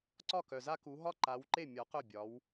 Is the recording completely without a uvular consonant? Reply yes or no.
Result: no